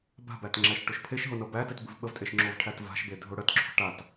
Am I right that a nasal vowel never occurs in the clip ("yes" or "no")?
yes